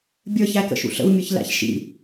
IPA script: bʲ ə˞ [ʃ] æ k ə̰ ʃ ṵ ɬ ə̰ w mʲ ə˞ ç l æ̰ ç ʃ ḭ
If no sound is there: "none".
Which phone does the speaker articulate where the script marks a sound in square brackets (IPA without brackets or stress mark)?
ç